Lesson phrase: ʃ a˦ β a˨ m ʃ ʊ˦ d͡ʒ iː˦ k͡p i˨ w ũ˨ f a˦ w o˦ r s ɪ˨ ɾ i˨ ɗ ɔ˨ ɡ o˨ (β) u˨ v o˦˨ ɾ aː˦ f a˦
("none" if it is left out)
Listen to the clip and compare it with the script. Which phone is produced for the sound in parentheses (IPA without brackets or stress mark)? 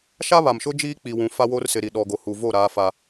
h